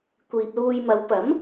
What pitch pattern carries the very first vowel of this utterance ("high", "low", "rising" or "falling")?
low